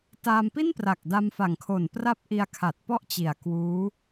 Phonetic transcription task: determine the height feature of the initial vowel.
low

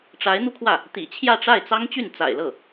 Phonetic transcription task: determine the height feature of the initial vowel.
low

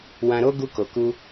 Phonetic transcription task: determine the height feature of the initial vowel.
low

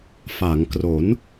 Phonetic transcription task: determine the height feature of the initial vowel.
low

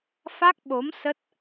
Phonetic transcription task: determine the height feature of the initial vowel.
low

